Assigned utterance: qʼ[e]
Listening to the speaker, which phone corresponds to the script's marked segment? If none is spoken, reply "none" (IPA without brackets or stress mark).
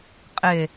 e